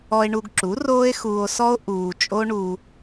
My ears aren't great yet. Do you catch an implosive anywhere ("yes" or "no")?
no